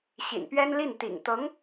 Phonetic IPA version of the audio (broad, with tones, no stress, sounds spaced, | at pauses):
ɕ ḭ˨˩ n p ɥ ɛ˥ n l i˥˩ n t̪ ḭ˨˩ ŋ t̪ ɤ˧˥ ŋ